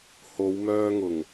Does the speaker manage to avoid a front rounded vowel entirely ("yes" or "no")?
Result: no